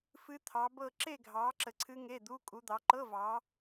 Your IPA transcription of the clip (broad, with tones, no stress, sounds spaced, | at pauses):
f ɨ˦˥ t̪ʰ ɑ˨˦ b ɤ˥˧ ǁ e˥˧ ɡʱ ɑː˨˦ ǁ ə˨ ǀʰ ɨ˦˥ ŋ e˧˥˧ d̪ u˧˥˧ kʼ u˨˦ d̪ ɑ˨˦ ǃ ɤ˧˥˧ v ɑː˨˦